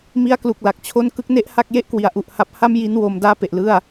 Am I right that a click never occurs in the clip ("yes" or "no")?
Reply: yes